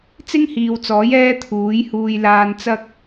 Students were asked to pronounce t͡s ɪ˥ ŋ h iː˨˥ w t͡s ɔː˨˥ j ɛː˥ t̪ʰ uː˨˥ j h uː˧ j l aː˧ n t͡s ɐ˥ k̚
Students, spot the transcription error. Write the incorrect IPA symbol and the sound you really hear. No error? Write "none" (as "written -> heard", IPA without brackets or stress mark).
iː˨˥ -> iː˨